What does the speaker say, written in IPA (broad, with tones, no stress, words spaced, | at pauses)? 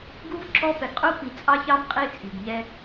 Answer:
ɡu˦v ǁɔ˦ pɛ˨ɡqʼu˦pi˨ t͡sʼɑ˦çɑ˦m qʼi˦t͡sʼi˨ɡɲɛ˦